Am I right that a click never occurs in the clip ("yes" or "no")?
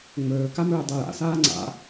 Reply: no